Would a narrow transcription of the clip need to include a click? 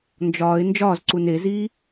yes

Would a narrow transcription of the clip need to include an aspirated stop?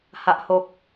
no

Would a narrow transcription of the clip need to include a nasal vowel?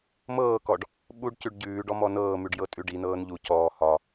no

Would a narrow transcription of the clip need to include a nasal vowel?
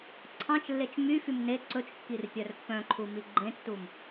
yes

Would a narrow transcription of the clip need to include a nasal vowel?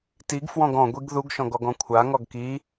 yes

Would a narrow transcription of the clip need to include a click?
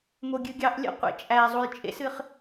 no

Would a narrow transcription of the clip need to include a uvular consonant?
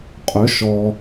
yes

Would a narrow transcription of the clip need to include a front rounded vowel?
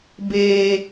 no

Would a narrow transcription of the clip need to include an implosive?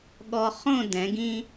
yes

